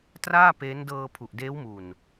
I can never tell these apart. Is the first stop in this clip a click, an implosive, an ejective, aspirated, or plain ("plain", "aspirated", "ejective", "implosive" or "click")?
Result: plain